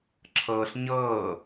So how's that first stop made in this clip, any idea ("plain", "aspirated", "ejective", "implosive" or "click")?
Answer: click